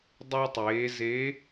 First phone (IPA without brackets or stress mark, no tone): dˤ